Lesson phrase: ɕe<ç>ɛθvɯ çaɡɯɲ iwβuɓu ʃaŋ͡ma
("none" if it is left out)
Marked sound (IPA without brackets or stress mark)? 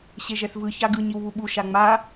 ʒ